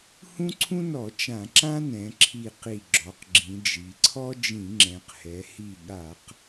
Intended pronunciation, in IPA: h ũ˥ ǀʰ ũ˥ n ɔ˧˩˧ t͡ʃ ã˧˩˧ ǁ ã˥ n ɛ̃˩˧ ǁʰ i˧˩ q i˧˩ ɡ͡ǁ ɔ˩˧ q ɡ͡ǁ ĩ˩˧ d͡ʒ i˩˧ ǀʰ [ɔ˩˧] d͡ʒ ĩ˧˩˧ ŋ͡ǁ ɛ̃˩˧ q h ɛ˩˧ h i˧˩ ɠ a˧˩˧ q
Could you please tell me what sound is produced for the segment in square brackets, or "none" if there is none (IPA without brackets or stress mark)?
ɔ˥